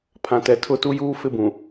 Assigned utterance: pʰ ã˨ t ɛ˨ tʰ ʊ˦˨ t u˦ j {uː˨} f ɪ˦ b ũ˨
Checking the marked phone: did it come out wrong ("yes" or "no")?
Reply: yes